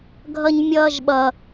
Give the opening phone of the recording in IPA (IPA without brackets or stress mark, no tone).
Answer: ɡʱ